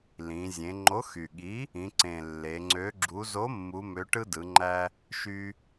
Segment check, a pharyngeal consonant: absent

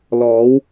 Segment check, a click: absent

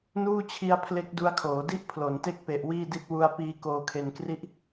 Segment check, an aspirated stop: present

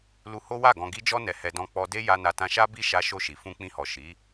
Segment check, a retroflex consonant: absent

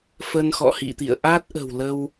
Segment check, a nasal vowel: absent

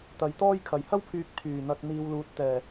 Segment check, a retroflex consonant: absent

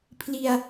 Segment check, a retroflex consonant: absent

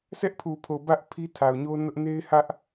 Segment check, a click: absent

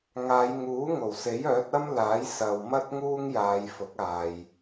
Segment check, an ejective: absent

